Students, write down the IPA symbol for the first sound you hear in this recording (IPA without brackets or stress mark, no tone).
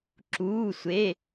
ǁ